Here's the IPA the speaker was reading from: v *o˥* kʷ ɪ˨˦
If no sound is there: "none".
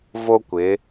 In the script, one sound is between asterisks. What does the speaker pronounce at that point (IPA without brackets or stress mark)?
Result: o˥